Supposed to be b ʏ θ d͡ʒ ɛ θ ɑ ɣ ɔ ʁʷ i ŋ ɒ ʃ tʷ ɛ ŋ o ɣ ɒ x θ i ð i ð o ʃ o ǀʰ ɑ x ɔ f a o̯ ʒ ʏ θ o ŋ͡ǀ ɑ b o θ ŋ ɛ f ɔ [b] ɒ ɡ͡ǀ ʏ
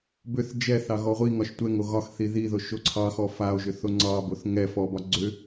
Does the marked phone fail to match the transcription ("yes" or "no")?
no